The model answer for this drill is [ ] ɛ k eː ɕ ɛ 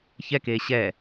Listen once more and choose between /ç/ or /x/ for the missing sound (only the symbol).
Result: ç